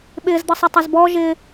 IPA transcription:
ɓ ɪː z d̪ ʌ sˤ ʌ tˤ a z b ɔ ʒ ɪ

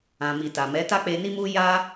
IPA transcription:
ã˨ m i˨ t a˨ m ɛ˨˦ t a˦ k͡p e˧ n i˦ m u˦ j a˦

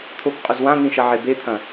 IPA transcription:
t̪ʰ o k qʼ ʉ z w ã n̪ ĩ ʃ ɐ ʕ e b e t̪ʰ ɐ̃

